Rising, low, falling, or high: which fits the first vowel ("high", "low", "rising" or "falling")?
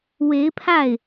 rising